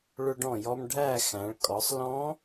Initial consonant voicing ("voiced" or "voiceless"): voiced